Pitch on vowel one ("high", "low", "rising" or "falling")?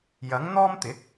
rising